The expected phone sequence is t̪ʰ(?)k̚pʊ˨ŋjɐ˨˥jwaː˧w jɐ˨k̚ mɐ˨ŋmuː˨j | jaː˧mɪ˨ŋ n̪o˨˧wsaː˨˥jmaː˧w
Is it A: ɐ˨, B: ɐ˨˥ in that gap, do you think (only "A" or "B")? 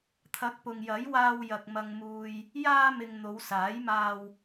B